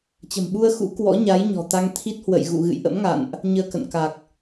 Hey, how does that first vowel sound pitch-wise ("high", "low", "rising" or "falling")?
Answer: low